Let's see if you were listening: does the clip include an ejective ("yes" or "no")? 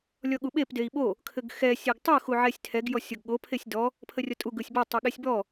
yes